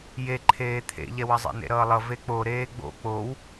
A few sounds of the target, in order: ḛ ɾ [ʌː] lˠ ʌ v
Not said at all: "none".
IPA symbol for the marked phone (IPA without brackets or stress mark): ʌː